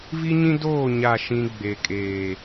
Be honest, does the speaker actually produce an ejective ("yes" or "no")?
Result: yes